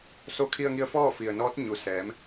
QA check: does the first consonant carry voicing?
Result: no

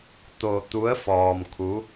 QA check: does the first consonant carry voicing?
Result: no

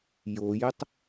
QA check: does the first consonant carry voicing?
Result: yes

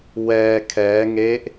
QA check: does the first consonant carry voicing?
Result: yes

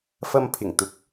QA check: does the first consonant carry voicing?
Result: no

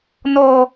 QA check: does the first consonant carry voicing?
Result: yes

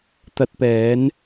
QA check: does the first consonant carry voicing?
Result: no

